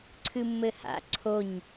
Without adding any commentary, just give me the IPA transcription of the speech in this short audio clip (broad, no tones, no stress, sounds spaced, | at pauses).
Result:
ǀʰ ɨ mː ɘ h a̰ ǀʰ o ɲ